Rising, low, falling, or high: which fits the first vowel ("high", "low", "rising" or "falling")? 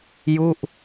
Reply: falling